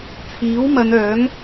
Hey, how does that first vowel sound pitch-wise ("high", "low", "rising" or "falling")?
rising